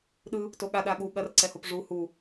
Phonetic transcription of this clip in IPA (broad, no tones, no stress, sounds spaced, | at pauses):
ɗ ɯ | t o ɠ a ɗ a ɠ u ɠ ɐ r ǀ ɛ h o p ʐ u h u